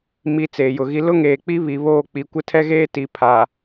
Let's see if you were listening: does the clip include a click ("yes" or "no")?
no